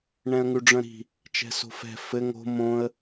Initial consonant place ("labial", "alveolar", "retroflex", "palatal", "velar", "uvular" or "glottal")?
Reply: retroflex